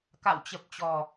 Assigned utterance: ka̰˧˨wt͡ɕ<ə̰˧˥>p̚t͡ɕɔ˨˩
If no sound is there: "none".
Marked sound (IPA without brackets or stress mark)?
ə˨˩